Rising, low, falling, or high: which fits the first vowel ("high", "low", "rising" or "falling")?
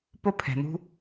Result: high